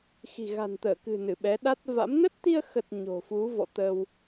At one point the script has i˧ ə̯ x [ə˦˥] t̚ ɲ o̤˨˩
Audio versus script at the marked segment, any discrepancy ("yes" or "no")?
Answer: yes